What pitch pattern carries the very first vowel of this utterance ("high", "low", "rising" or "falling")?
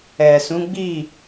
low